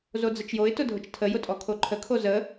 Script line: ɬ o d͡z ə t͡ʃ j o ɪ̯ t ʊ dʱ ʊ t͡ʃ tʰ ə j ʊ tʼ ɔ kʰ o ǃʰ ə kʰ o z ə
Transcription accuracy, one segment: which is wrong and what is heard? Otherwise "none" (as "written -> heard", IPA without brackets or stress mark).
ɬ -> z